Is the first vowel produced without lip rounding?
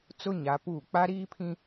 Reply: no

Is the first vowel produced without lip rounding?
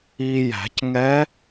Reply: yes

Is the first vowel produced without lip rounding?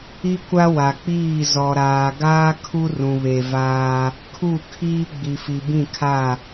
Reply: yes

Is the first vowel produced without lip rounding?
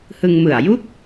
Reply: yes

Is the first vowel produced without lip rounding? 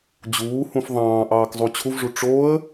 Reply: no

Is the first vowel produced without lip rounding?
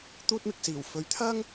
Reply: no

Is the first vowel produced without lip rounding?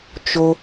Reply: no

